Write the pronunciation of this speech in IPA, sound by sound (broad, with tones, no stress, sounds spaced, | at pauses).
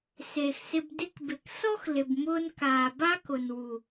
s eː˨ x s ɪ˧ b d ɪ˧ k b ɪ˨ k s ɔ˦ x l ɪ˨ b m ʊː˧ n k aː˨ b a˦ k ʊ˨ n w u˨